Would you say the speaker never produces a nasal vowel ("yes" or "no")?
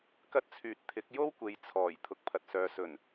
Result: yes